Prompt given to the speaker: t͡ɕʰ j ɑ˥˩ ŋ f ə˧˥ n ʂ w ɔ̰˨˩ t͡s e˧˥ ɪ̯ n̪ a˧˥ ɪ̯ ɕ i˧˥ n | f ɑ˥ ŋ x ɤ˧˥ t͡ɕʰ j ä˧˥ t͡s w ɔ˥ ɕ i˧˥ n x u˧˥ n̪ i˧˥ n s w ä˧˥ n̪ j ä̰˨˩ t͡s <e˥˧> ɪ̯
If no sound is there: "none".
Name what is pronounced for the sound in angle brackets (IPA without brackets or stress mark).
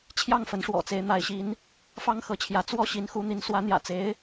e˧˥